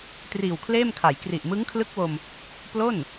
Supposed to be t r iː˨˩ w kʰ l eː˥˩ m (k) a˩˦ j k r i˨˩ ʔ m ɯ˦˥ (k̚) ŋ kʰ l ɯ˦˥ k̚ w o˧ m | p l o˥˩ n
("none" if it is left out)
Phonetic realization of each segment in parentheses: kʰ, none

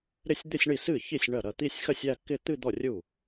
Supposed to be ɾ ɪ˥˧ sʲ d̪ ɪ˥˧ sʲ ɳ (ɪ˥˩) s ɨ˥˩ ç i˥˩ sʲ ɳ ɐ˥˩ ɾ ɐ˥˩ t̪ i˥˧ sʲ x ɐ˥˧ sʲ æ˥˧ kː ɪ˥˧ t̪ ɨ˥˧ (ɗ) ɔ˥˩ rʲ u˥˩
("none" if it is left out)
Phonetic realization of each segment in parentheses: i˥˩, d̪

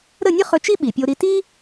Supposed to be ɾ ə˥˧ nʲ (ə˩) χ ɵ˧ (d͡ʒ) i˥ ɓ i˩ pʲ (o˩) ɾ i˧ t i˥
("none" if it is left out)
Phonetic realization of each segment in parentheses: ə˥, t͡ʃ, o˧

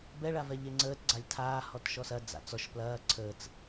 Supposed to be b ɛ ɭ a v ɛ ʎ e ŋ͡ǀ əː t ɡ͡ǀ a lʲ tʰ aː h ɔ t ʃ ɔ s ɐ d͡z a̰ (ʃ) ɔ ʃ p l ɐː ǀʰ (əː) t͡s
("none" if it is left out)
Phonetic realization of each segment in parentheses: t͡s, əː

